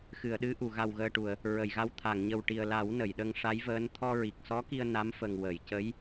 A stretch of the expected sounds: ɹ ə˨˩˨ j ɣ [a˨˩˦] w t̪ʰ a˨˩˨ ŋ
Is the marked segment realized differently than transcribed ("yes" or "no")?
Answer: yes